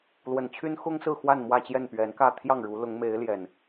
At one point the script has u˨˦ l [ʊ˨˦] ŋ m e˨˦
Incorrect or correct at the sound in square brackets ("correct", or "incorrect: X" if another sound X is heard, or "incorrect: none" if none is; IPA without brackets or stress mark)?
correct